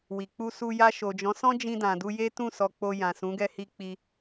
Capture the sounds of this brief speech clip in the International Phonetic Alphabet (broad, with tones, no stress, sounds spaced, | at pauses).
w i˨ k͡p u˧ s u˧ j a˧ ʃ o˨ d͡ʒ ɔ̃˨˦ s ɔ̃˦ d͡ʒ ĩ˧ d ã˨ d u˧ j e˦ t ũ˦˨ s ɔ˧ k͡p o˧ j ã˨ s ũ˨˦ ɡ ɛ˧ h i˧ k͡p i˧